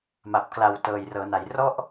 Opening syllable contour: low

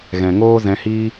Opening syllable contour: low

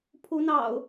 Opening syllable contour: rising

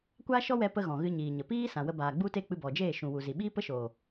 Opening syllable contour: high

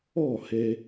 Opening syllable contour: falling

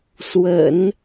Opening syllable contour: low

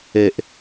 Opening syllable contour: low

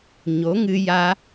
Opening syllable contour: rising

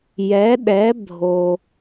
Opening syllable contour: rising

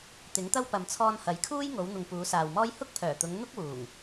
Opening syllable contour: rising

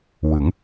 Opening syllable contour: rising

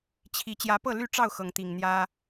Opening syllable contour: rising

